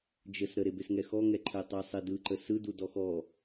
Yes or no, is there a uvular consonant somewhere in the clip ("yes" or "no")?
no